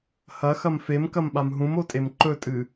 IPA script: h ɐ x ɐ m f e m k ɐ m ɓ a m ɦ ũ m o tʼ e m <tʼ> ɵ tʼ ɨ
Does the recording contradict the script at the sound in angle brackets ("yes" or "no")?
yes